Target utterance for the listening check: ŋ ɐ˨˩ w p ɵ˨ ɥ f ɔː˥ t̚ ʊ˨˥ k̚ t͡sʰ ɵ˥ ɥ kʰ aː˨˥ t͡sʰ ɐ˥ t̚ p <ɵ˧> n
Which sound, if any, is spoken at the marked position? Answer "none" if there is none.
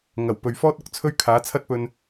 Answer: ɵ˧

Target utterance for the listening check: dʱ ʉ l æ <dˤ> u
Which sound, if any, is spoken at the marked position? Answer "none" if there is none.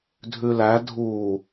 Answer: dʱ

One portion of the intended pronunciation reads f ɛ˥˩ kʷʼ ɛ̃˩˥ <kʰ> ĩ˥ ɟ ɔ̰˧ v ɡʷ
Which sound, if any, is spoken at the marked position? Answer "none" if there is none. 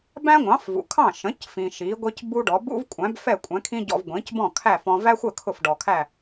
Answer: kʰ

